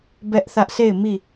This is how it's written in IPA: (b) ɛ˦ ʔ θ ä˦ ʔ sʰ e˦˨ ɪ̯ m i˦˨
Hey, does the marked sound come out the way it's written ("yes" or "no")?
yes